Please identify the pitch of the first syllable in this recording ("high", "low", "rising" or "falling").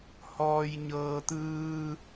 low